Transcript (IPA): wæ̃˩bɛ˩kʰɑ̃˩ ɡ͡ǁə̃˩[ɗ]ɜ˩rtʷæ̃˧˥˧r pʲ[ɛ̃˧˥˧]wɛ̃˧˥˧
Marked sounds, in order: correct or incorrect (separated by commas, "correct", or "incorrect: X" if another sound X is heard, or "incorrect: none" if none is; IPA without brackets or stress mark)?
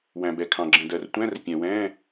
incorrect: d, incorrect: ɛ̃˩